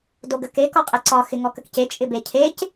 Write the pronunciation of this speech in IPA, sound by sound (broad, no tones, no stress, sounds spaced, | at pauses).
d o ɡ ə k e k ɔ qʼ e ǀ ɒ x ɪ ŋ ɔ k ə k c e t͡ʃʼ ɪ b e cʰ e c